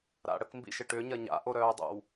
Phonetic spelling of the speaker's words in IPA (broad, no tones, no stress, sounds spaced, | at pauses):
ɾ a̰ ɽ ə k m b ḭ ʃ ɪ ʈ ʏ ɲ ɐ ɲ a̰ ʔ o ɾ œː dˤ o̰ w